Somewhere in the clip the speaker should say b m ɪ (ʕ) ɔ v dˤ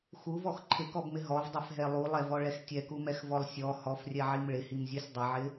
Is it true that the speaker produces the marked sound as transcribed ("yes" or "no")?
no